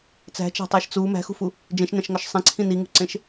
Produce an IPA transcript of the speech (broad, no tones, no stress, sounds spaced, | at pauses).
t͡s æ̤ t͡ʃ æ̤ tˤ æ ʃ t͡s u m æ̤ x ṳ f u | d͡ʒ ẽ ʃ n æ̃ ʃ ŋ ɒ ʃ sˤ ẽ ǀʰ ĩ n i ŋ ṳ ǀ ẽ ʃ